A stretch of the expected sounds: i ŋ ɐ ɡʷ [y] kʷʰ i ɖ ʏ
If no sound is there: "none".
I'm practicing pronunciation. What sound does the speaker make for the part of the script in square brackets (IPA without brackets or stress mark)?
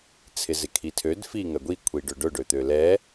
i